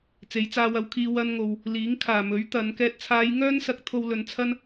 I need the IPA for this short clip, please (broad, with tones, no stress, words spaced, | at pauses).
t͡se˨˥jt͡saː˧wɐ˧wkʰiː˧ wɐ˧nŋo˨w | liː˨˥ŋkʰaː˨˩mɵ˨˥ɥ t̪ɐ˨˧n kɛː˨t̚t͡sʰaː˨˧j ŋœː˥nsɐ˧k̚ t̪ʰo˧wlɵ˨˧nt͡sʰɐ˥n